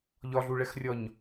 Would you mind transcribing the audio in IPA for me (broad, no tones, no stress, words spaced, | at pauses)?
ʎɒɮuɭɛxrʲɒɲ